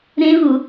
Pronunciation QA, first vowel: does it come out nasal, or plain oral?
nasal